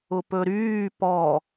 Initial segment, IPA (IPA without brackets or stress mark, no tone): ʊ